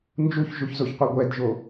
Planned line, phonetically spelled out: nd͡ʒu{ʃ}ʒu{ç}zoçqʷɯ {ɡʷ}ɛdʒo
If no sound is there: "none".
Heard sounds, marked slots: ç, ç, ɡʷ

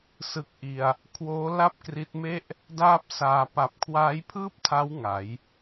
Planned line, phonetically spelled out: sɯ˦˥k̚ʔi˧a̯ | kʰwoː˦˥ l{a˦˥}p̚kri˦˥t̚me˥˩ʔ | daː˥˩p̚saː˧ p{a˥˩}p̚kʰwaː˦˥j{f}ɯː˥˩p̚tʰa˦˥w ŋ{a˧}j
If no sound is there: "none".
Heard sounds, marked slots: a˥˩, a˨˩, pʰ, a˩˦

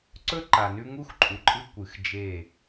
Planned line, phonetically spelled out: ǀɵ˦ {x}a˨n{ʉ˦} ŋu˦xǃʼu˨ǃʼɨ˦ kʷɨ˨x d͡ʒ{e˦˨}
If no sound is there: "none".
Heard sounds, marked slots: ǃ, ʉ˦, e˦˨

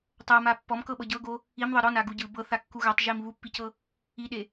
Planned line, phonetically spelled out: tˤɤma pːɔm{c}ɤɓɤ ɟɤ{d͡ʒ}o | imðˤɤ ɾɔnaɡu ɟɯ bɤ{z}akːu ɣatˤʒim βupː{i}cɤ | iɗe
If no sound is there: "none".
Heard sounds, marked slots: k, ɡ, θ, i

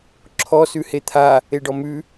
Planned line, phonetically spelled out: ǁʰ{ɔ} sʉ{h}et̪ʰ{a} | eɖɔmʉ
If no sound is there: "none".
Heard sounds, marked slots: ɔ, h, a

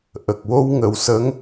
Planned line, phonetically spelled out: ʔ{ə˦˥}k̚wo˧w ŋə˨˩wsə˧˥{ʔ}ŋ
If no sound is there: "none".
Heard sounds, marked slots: ə˨˩, none

